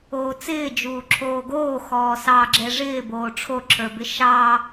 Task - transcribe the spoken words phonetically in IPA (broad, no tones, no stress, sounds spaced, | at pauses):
oː t͡s ɪː d͡ʒ uː ǁʰ oː ɡ oː x ɔː s ɑ ɡ͡ǁ ɛ ʐ ɪː b oː ʈ͡ʂʰ o ǁʰ ə˞ b ɪ ʃ ɑ